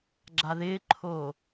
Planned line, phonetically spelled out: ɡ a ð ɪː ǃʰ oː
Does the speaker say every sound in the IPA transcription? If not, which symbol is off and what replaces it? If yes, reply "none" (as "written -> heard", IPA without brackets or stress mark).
ɡ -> ɡ͡ǁ